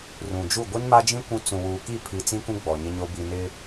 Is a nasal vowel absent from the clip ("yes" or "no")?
no